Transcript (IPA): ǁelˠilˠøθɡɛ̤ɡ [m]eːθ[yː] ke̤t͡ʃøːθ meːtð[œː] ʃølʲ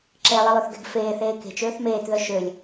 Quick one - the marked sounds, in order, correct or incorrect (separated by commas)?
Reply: incorrect, incorrect, incorrect